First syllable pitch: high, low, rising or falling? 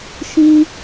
high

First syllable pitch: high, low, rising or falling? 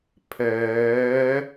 rising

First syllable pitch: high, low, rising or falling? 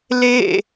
falling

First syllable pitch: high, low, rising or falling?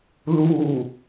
falling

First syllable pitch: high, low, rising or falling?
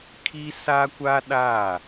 high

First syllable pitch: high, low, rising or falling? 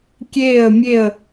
falling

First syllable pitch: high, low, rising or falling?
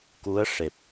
rising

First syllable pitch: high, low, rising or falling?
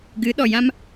rising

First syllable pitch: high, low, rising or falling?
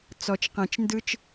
low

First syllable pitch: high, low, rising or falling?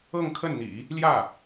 falling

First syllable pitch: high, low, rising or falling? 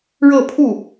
falling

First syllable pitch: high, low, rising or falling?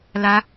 high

